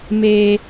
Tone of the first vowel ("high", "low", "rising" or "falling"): high